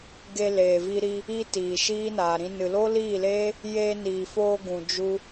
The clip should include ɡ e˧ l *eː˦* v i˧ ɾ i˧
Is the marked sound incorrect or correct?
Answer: incorrect